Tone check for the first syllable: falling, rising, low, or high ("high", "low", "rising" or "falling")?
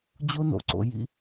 high